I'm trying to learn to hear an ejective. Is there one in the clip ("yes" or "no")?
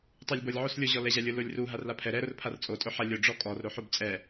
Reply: yes